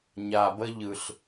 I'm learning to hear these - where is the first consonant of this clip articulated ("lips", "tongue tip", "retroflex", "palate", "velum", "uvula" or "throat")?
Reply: palate